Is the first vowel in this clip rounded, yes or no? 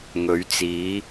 yes